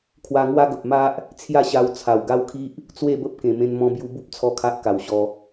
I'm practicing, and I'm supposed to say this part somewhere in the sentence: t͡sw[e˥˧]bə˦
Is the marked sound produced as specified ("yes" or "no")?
yes